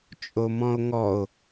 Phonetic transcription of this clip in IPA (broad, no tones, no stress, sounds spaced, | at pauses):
t͡ʃʼ o m ɔ̃ o̯ ŋ ɔ o̯